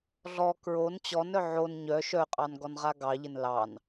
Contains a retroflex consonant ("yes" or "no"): no